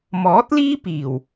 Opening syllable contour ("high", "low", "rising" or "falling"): rising